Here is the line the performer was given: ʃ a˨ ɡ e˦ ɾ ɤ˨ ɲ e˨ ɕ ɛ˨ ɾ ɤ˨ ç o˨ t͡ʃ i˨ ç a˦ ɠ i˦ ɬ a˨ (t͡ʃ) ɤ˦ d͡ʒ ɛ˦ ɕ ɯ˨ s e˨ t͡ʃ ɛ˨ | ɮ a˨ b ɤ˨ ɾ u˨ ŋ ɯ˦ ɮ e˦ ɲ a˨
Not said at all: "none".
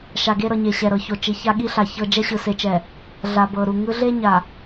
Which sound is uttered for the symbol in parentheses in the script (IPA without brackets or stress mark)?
ç